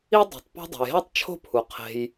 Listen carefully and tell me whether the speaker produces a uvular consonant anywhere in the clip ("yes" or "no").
yes